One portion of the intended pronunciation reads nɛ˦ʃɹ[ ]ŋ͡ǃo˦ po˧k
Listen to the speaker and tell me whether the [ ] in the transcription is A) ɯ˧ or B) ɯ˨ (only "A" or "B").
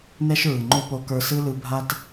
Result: B